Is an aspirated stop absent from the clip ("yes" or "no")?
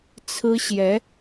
no